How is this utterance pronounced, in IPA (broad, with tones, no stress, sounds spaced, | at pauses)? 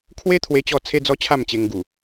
kʰ w e˦ t̪ʰ w e˧ t͡ɕ ɔ˧ t͡sʰ e˦ d͡z ɔ˦ t͡ɕʰ a˥˧ m t͡ɕ e˧ ŋ ɡ u˨˩